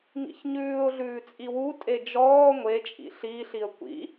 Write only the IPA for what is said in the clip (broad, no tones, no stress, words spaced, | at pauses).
ŋḭçɲʉːʊ̯ɮʉː t͡sʼiwutʼe d͡ʒɔː ŋʷe t͡ʃʼḭɬiːɬiə̯ kʷḭ